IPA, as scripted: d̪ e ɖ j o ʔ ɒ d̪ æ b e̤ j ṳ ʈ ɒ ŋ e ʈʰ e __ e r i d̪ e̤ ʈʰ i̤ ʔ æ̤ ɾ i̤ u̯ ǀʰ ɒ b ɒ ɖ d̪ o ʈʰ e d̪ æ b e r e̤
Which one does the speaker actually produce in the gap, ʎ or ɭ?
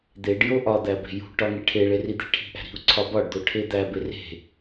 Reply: ɭ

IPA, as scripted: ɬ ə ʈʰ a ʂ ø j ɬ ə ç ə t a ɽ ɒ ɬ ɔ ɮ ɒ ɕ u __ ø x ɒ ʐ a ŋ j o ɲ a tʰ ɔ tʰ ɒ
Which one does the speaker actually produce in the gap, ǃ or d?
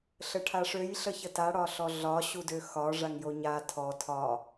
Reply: d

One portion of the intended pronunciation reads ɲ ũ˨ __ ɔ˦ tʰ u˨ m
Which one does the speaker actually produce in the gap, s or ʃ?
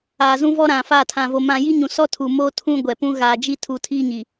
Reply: s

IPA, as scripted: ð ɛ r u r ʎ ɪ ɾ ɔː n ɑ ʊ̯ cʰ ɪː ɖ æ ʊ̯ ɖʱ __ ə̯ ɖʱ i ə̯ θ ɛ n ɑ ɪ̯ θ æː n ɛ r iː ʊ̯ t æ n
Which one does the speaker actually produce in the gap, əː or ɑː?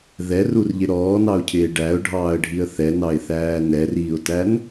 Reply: ɑː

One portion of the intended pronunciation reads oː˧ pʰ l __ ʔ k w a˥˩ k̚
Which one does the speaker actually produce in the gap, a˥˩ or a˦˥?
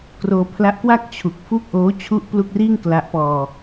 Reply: a˦˥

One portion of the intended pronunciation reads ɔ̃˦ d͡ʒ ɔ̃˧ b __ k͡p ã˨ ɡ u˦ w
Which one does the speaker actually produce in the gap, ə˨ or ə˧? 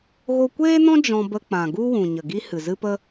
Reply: ə˧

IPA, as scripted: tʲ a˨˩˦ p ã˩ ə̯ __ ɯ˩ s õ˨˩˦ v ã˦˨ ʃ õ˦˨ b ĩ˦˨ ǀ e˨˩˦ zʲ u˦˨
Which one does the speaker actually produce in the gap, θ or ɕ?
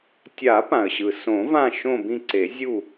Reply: ɕ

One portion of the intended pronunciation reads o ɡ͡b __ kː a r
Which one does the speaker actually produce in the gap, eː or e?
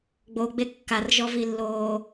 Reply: e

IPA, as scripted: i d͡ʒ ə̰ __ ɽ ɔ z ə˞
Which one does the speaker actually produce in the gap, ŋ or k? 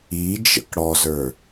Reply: k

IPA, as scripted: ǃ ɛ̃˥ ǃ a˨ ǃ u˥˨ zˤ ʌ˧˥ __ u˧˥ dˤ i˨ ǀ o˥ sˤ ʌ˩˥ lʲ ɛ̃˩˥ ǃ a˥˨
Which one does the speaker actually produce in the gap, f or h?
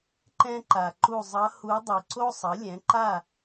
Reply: h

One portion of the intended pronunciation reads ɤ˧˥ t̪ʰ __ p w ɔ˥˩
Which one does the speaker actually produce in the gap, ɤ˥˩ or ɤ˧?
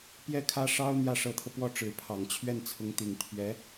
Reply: ɤ˧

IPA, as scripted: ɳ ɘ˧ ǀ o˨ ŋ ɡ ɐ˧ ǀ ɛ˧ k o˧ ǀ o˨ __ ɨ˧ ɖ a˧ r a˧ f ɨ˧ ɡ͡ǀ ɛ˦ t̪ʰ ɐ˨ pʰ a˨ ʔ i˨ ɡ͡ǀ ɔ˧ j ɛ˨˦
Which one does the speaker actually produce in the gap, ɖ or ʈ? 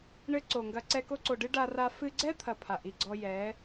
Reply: ɖ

